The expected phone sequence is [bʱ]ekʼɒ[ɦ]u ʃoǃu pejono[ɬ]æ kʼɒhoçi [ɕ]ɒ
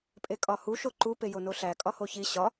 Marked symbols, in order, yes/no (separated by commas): no, no, yes, yes